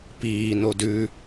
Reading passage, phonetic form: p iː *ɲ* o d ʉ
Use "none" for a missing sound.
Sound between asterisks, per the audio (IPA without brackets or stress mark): n